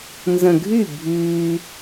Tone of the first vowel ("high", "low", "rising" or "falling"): low